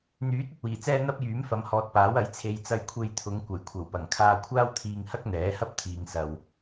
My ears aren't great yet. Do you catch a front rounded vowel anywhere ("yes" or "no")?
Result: yes